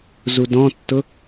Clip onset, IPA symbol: z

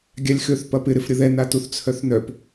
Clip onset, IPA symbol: ɡʲ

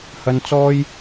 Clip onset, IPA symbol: h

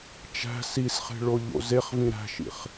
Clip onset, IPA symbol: t͡ʃ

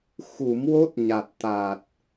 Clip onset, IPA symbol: x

